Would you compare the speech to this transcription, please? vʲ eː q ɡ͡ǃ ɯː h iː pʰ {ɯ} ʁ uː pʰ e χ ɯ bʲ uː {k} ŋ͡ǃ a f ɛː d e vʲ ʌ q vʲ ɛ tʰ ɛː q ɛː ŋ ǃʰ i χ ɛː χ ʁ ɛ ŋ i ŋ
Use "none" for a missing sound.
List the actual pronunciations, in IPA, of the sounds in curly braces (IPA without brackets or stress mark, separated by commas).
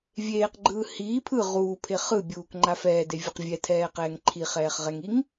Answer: ɯ, k